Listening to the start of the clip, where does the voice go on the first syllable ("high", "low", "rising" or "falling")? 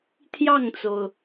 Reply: falling